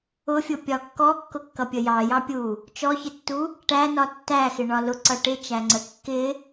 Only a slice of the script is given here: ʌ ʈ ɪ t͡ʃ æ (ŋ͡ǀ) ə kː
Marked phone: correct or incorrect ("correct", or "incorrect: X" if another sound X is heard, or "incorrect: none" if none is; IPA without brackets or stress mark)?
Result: correct